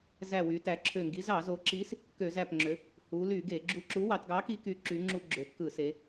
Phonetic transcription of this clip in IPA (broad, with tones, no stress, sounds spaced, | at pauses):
z æ˧˩ w y˩˧ t æ˩˧ ǁʰ ø˧˩ ŋ ɡ i˨˥ z ɑ˧˩˧ z o˩˧ ǁ i˨˥ s | k ø˧˩˧ z æ˧˩ p ŋ͡ǁ ø˩˧ | h u˩˧ l y˧˩˧ ɡ e˧˩˧ ɡ͡ǁ u˧˩ ǁ u˨˥ w ɑ˩˧ t ɡ ɑ˨˥ k i˨˥ k y˩˧ ǁ y˩˧ ŋ͡ǁ u˧˩˧ ɡ͡ǁ ø˩˧ t k ɯ˧˩˧ s e˩˧